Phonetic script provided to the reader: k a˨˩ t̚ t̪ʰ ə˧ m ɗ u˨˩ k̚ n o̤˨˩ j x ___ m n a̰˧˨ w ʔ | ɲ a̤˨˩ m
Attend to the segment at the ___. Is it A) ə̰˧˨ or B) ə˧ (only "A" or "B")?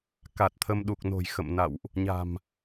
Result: A